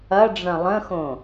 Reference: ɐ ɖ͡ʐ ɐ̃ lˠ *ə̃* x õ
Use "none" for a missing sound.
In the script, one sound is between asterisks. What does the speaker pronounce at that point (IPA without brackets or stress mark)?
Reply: ə̃